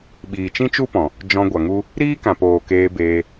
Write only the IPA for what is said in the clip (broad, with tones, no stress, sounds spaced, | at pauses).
ɓ iː˨ t͡ʃ ĩ˦ t͡ʃ u˦ p ɔ̃˨ | d͡ʒ ɔ̃˧ ɡʷ a˨ ŋ u˦ | ɾ iː˦ k ã˨ p oː˨ k eː˧ b eː˧